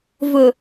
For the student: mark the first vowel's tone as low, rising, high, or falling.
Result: low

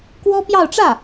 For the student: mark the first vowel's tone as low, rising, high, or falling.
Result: high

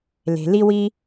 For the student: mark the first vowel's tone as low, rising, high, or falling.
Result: low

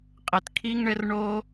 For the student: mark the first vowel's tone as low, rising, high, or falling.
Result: low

